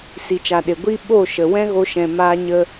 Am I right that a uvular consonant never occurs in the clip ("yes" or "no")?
yes